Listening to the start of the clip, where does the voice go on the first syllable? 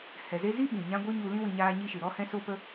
low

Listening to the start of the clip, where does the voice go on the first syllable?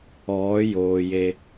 rising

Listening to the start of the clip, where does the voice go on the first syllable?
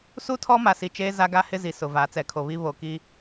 high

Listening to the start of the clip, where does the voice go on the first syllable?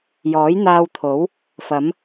rising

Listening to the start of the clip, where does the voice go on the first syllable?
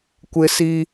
high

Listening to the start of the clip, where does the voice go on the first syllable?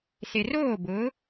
low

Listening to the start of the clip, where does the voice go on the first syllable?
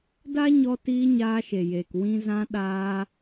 high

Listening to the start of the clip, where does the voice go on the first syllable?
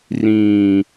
low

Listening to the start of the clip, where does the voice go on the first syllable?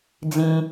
high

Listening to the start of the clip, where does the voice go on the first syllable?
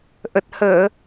low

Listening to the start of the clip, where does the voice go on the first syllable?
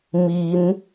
rising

